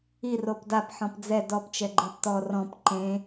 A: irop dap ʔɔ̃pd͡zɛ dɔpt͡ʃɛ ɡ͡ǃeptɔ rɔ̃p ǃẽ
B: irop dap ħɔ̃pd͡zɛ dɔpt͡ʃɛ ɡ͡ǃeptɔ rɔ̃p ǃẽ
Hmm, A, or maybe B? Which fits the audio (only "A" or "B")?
B